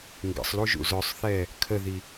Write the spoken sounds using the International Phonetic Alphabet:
ŋ ɡ ə̰ sˤ l u ʒ ṵ z œ sˤ θ ɛ | kʰ ə ð i

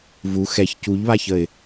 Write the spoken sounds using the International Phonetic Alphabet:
v u x ɛ ç c u ʎ β a ç ə ɪ̯

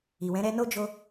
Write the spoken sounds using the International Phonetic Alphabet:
i˨ w ɛ̃˨˦ ɾ ɛ˧ n o˦ d͡ʒ o˧

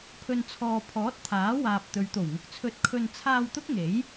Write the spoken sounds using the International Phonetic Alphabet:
pʰ ɵ˨ n t͡sʰ ɔː˨ pʰ ɔː˨˥ t̚ t̪ʰ aː˨˥ w aː˨ p̚ t̪ ɵ˨˧ ɥ t̪ o˨˩ w ŋ ʊ˧ k̚ t͡sʰ ɵ˧ t̚ kʰ ɵ˧ n t͡sʰ aː˧ w t̪ ʊ˥ k̚ ŋ e˨˥ j

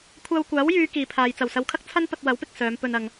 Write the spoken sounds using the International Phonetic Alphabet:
kʷʰ aː˧ w kʷ aː˨˥ w j yː˨˧ k iː˨ pʰ aː˨ j t͡s ɐ˨˩ w s ɐ˨ w kʰ ɐ˥ k̚ t͡sʰ ɐ˥ n p ɐ˧ t̚ w ɐ˨˥ w p ɪ˨ k̚ s œː˨˧ m p ɵ˧ n ɐ˨ ŋ

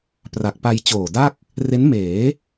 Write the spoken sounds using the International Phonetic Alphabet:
p r a˨˩ k̚ p a˧ j t͡ɕ oː˨˩ d a˥˩ k̚ | r e˦˥ n m eː˩˦

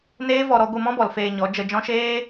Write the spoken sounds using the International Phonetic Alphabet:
n eː˦ v ɔ˧ ɾ ɔ˧ ɡʷ ɨ˦˨ m ɔ̃˦ b ɔ˨ l f eː˧ ɲ ɔ˨˦ d͡ʒ ə˧ d͡ʒ ɔ̃˦ ʃ eː˦

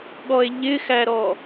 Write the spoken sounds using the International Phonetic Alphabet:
ɠ ɔ e̯ ʎ ɪ x æ ɾ ɔ

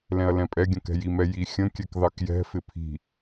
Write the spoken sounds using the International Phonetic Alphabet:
l ɛ̃ ɐ̯ l ɛ̃ pʼ ɛ ɡʲ ə̃ k ɛ̤ j i m ɛ j i xʲ ə̃ kʲ ɛ k ð ɑ k j ɛ̤ f ɪ pʰ i̤

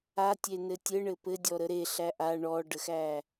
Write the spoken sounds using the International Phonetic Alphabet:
a tʲ e n ɘ tʲ ɘ ɳ ɘ p ɘ dʲ ɔ ɾ ə ɾ e ɬ æ ʔ a ɳ ɔ ɖ ə x æ

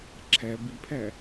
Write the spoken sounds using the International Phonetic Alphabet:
ǁʰ æ b i pʰ æ

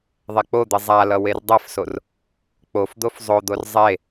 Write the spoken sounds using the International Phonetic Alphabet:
ðˤ ɛ k͡p o d̪ i zˤ a l ʌ w e r dˤ ɛ f s o r | k͡p o f d̪ o f zˤ o d̪ o r zˤ e

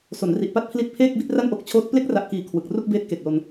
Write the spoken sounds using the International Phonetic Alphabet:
s o˩˦ n r i˨˩ ʔ p a˥˩ t̚ pʰ l i˦˥ t̚ pʰ eː˥˩ k̚ b i˥˩ t̚ r a˥˩ n ʔ o˦˥ k̚ t͡ɕʰ oː˦˥ t̚ p l e˦˥ k̚ r a˨˩ ʔ k iː˨˩ kʰ w ɯ˨˩ k̚ r u˥˩ k̚ b eː˦˥ t̚ k e˨˩ k̚ l o˧ n

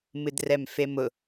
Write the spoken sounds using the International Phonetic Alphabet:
m ɨ d r ɛ m f e m ʊ

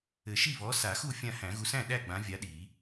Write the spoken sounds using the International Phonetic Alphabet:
ɘ˨˩˦ ʃ i˥˩ β ɔ˨˥ s a˨˩˦ x u˥˩ fʲ ã˥˩ h æ̃˨˩˦ ɣ u˨˥ s æ̃˥˩ ɗ æ˥˩ ɡ͡b ã˨˥ vʲ a˨˥ ɗ i˨˩˦

